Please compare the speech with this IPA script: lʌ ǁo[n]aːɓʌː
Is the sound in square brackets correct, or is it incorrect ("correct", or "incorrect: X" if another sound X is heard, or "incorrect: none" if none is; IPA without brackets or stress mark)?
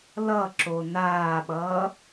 correct